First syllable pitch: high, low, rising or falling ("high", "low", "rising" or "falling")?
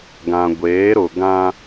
low